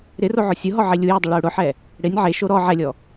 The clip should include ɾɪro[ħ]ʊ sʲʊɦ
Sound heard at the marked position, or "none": ʕ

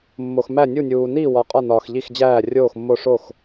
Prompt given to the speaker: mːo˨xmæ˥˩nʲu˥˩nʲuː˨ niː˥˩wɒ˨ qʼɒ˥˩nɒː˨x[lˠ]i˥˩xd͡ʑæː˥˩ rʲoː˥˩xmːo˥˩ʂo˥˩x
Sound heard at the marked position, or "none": ʎ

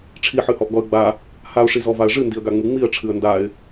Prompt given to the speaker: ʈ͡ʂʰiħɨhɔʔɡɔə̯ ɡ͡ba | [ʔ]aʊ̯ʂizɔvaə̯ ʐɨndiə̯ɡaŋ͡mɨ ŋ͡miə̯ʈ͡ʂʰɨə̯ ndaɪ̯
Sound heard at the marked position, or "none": h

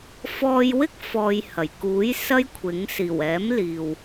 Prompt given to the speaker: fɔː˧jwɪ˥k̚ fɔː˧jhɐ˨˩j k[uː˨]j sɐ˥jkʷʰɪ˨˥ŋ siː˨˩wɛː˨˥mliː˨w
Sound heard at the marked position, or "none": uː˨˥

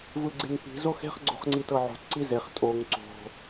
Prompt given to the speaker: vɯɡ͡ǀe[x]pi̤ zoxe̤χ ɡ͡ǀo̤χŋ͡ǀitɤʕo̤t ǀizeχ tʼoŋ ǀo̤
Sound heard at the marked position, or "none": ŋ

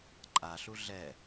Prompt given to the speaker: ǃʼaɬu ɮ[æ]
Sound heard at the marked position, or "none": ɛ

